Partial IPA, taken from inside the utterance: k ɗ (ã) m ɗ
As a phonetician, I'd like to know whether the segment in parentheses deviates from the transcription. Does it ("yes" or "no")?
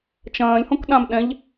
no